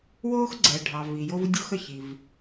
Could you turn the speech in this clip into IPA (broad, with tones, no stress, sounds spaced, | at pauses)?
w oː˥ x ɡ͡ǀ ɛ˨ ɖʱ ɑ˨ v i˨ j o˦ v dʲ o˦ x ə˨ ç i˨ v